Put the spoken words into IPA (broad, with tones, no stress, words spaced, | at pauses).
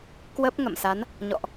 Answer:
kwə˦˥p̚ ŋə̰˧˨msa˨˦n | ɲɔ̰˧˨ʔ